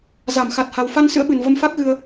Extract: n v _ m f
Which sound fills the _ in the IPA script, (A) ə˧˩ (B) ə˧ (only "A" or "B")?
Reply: B